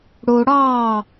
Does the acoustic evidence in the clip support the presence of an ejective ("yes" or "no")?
no